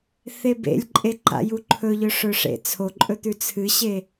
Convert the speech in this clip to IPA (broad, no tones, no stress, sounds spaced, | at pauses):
θ e b ḛ lʲ ǃʼ e ǃ a̰ j u ǃʰ ɵ ʎ ɵ ʂ ɵ ʂ ḛ t͡sʰ o ǃʼ ɵ t̪ ʉ t͡sʰ ɨ ɕ e